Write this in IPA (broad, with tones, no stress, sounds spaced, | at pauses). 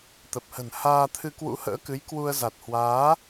t̪ ə˨˩ p̚ h ə̤˨˩ n h aː˧ t̪ʰ ɨ˧ k w ṵ˧˥ h ə̰ː˧˥ k ɨ˨˦ j k w u˧ ə̯ z a˨˩ t̚ h w aː˨˦